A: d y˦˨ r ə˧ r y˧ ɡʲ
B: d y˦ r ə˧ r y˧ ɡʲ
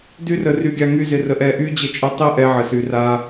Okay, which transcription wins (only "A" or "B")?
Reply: B